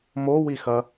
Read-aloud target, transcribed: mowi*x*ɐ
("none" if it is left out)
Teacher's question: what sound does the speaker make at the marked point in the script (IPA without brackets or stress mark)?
x